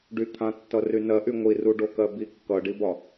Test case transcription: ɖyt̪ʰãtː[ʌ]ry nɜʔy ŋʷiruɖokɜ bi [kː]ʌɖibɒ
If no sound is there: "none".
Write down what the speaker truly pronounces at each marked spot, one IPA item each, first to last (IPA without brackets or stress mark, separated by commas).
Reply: ʌ, kː